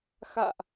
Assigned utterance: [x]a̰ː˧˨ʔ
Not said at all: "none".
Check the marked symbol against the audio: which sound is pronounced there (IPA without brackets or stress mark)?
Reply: x